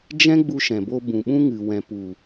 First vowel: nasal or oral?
nasal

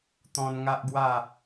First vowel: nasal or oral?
nasal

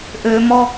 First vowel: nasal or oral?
oral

